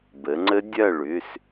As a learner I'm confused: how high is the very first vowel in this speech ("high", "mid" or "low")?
mid